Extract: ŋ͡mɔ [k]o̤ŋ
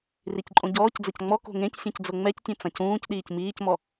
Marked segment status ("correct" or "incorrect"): correct